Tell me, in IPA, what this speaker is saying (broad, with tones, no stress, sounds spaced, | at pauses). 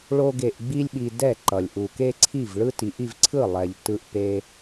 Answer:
ɭ o˥ ɡ e˧ ʔ ɡ͡b i˥ lʲ ɓ i˧ d ɛ˥˩ ǃ ʌ˩ lʲ ʔ u˩ k e˥ ǀʰ i˥˩ v ɭ ɯ˥ t i˩˥ ʔ i˧ v ǀʰ ɯ˥˩ lˠ ɛ˩ ʎ t ɯ˧ ʔ p e˧